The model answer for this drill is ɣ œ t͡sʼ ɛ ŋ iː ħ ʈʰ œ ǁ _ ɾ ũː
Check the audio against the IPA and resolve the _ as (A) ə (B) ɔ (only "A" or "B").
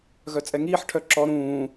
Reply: B